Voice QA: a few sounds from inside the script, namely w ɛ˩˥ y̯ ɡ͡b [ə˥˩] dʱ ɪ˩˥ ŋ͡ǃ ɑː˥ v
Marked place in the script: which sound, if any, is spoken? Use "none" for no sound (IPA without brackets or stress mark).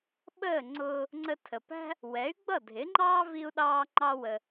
ʌ˥˩